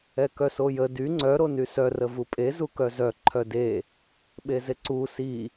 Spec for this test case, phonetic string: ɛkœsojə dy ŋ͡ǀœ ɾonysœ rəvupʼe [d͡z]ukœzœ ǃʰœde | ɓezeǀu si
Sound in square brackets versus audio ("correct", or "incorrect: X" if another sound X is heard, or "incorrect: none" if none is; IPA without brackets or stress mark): incorrect: z